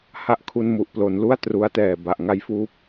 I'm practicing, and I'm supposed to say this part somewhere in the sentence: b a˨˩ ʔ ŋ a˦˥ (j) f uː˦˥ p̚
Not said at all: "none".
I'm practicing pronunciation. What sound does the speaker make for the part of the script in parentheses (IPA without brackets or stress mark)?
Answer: j